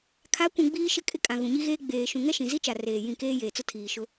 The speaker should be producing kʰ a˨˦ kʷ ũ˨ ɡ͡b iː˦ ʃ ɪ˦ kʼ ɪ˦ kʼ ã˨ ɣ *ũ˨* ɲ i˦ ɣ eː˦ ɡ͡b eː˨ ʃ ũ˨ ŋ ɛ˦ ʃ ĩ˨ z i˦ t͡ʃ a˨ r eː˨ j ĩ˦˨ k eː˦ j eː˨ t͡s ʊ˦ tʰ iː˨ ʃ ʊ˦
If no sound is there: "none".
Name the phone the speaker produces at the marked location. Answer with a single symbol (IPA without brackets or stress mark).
ũ˨